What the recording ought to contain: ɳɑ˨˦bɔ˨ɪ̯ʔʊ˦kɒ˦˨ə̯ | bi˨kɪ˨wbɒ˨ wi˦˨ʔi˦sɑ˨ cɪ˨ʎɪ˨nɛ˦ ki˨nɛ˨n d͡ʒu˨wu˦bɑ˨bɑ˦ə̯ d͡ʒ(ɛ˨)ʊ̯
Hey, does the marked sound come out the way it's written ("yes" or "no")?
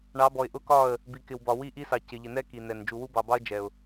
yes